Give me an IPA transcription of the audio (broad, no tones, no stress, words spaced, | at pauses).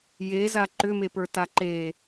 jeza ǃʏmepə˞ taǃe